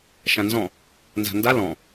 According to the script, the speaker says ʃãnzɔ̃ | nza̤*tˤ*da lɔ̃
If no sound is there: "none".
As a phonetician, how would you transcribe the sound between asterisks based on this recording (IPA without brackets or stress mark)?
n